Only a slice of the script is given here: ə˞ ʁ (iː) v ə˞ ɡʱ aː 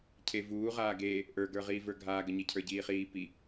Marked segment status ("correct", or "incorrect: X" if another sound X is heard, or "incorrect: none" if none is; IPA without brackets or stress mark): correct